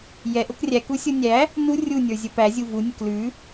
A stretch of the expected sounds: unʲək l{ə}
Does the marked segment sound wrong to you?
yes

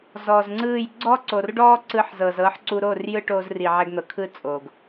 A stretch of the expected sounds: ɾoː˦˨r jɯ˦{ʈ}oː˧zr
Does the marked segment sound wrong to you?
no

